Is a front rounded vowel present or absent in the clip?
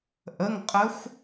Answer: absent